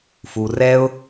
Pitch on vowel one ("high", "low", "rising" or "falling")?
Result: low